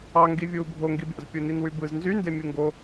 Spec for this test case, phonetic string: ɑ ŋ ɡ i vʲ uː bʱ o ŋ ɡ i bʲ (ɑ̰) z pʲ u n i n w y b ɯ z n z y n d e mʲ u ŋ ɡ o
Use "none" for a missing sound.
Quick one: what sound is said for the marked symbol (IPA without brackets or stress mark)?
ɑ̰